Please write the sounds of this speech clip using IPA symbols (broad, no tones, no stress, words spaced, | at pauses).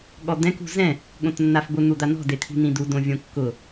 ɠɔd̪ɛ̃k ṳzɛ̃ | ɠõtnːafbʊ n̪ud̪anɔ̤ det̪ʰi̤n̪ĩdu dõvʲõkːʊ